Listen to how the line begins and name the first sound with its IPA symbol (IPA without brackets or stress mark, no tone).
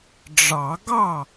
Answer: ɖ͡ʐ